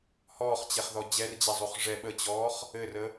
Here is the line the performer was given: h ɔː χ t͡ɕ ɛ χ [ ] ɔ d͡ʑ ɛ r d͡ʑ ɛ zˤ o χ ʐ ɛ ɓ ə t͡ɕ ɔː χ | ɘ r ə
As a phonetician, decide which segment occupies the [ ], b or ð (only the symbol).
ð